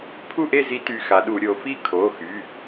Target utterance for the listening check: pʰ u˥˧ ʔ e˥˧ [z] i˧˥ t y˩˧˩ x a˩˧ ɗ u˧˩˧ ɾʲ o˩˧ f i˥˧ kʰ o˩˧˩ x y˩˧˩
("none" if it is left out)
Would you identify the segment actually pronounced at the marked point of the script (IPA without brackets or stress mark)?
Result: z